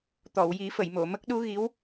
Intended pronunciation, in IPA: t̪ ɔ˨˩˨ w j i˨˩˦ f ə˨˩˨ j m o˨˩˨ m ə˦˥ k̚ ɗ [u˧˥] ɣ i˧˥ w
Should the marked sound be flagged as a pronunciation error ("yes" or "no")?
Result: no